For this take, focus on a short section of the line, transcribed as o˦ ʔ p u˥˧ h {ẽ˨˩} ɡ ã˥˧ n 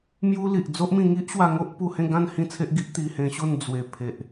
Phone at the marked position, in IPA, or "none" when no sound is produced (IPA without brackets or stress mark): ẽ˥˧